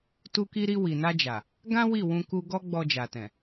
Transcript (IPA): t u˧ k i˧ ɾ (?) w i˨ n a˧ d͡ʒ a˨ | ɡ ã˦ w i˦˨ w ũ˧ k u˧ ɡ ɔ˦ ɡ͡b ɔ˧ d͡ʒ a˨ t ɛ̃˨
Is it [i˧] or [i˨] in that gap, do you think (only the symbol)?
i˧